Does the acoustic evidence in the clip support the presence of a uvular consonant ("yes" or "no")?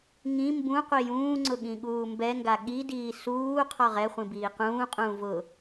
yes